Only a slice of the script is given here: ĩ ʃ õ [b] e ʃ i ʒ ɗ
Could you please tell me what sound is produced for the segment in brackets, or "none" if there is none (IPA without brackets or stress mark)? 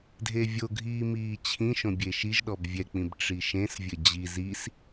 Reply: bʲ